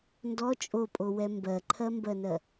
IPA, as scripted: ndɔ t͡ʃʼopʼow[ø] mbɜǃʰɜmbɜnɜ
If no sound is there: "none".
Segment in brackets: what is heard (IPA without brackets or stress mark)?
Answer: ɛ